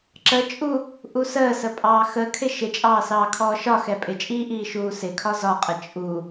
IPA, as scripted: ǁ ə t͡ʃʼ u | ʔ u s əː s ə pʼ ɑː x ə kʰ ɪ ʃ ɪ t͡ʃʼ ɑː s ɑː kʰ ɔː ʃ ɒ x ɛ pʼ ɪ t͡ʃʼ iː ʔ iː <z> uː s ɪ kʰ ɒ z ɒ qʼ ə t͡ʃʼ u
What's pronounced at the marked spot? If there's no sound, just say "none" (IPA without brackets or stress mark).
ʃ